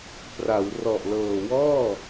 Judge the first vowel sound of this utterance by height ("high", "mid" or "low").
low